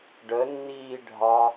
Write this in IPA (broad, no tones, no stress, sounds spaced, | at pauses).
ɖ ə nː iː ɖʱ ɑ